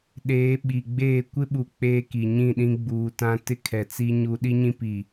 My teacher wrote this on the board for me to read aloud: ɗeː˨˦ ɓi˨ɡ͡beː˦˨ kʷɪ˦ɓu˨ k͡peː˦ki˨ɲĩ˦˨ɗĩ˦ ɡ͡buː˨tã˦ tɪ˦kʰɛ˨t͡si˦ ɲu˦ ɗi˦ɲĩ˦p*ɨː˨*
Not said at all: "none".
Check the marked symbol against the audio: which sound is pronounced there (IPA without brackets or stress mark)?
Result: iː˨